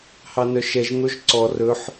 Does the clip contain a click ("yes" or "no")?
yes